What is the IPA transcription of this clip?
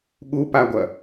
ɠupaɡʷɐ

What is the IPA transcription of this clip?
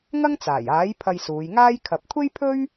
ŋɐ˥ŋt͡saː˨˩jaː˨˥j pʰɐ˧jsuː˨˧jŋaː˥j kʰɐ˨p̚kʷʰe˥jpʰɵ˥ɥ

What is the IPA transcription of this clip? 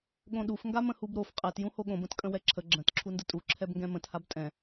ɠõɗuf ŋɡamə̃hubɾof qʼɛt jũhoɠõb ə̃tkʼə̃wɛǁʰə ɡ͡ǁə̃t ǁʰundətʼu ǁʰɛbŋɡɛ̃mə̃t habtʼɛ̃

